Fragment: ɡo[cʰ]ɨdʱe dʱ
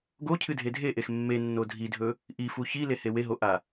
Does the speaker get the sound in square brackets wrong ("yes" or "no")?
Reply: no